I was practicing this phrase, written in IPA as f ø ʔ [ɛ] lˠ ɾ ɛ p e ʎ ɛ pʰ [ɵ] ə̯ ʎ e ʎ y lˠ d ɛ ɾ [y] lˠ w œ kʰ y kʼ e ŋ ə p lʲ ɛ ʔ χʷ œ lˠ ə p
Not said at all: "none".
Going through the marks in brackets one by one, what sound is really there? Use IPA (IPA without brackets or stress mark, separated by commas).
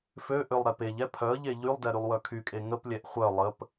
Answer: ø, œ, y